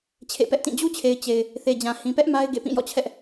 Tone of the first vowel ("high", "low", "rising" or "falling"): falling